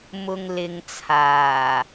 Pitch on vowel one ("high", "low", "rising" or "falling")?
low